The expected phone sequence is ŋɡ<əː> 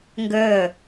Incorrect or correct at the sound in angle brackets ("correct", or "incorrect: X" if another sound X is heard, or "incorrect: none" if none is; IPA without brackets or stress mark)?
correct